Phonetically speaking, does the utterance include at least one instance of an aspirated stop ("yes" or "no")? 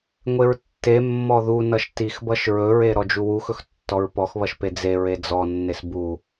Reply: no